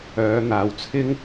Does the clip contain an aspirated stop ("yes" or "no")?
yes